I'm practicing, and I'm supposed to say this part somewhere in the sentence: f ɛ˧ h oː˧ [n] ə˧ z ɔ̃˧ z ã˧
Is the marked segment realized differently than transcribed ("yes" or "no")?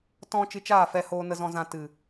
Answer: no